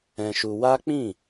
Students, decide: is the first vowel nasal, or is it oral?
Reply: nasal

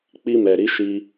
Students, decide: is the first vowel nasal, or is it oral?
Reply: oral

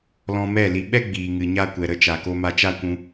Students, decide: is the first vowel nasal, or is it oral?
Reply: nasal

